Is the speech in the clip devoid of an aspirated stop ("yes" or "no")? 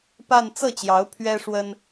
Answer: no